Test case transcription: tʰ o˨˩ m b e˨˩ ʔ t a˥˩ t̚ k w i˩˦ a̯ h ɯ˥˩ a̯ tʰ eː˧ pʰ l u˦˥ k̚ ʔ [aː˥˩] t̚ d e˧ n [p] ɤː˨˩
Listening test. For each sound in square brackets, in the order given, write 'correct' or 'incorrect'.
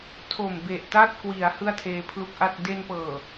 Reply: incorrect: a˥˩, correct

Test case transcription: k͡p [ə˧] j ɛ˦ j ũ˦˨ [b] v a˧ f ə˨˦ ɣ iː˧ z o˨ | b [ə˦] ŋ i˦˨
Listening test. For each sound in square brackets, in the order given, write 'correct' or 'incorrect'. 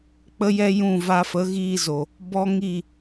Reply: incorrect: ə˦, incorrect: none, incorrect: ɔ˦

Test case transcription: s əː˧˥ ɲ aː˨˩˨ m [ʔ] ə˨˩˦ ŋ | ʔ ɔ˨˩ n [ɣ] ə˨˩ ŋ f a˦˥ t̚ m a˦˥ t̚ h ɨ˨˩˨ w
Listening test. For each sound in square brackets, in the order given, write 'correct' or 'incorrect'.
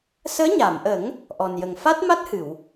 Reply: correct, incorrect: j

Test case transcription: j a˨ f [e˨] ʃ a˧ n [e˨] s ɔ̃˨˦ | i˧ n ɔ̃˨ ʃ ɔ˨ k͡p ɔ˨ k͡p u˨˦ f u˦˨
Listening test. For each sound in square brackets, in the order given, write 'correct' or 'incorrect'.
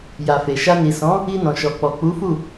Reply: correct, incorrect: i˨

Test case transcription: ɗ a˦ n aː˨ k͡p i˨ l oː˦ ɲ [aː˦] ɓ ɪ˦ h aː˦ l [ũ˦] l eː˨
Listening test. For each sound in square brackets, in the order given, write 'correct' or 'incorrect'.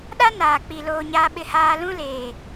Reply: correct, correct

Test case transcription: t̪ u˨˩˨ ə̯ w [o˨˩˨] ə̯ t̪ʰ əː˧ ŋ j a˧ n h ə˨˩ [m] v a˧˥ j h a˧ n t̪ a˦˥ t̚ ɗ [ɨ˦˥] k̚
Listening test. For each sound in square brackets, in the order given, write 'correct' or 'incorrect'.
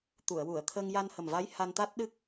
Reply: incorrect: u˨˩˨, correct, correct

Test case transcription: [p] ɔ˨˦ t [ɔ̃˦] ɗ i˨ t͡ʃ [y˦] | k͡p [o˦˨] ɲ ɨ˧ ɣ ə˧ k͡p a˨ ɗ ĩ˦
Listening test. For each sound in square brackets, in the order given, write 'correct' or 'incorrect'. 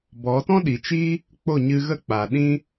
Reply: incorrect: b, correct, incorrect: i˦, correct

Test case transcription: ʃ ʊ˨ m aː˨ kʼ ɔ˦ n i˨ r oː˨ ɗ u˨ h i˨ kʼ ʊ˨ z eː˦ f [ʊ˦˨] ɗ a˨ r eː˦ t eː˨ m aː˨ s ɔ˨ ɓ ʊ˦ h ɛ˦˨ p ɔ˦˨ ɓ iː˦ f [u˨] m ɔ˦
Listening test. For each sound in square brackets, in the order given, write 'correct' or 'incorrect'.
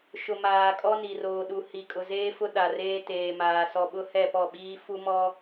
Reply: incorrect: ʊ˦, incorrect: u˦

